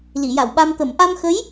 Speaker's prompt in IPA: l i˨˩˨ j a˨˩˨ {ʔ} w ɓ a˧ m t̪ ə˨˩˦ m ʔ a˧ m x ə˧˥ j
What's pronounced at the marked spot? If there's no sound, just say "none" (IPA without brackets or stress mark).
none